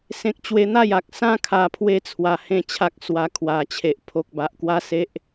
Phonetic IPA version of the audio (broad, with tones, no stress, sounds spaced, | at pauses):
s ẽ˦ k̚ t͡ɕ w e˦ n̪ a˥˧ j a˨ k̚ s ã˦ kʰ a˧ pʰ w e˦ t͡sʰ w a˨˩ h ẽ˥˧ t͡ɕʰ a˦ k̚ s w a˧ kʰ w a˨˩ t͡ɕʰ e˨ ʔ pʰ o˨ k̚ b a˨ ʔ k w a˦ s e˦ ʔ